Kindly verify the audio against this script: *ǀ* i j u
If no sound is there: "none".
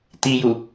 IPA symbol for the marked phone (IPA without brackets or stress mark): t̪